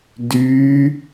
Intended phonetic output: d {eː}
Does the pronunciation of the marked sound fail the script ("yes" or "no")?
yes